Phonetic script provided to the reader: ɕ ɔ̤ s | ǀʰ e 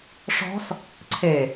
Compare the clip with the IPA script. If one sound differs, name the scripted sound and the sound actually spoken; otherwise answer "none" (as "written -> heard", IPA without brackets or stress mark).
ɕ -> ʂ